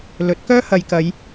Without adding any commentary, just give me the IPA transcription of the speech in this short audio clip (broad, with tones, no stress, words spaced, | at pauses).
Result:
lɵ˨˥t̚kœː˥hɐ˨j kɐ˨˧j